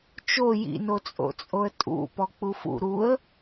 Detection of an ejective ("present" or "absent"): present